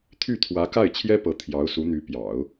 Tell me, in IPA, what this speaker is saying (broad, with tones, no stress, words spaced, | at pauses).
t̪ʰy˥˩t̪ʰwä˧˥ ka˥˩ɪ̯t͡ɕʰjɛ˥pɤ˧˥ t̪ʰjɑ˧˥ʊ̯ su˧˥n̪y˧˥ pjɑ̰˨˩˦ʊ̯